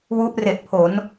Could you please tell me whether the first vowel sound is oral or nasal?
oral